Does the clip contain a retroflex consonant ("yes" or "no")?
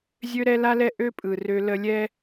no